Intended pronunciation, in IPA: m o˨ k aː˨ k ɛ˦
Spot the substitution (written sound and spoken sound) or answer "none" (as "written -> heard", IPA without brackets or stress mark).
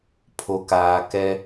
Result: m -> pʰ